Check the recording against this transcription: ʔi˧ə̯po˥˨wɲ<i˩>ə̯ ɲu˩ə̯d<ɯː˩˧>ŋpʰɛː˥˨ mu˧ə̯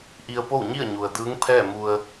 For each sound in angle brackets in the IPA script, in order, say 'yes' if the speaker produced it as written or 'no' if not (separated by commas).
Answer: no, no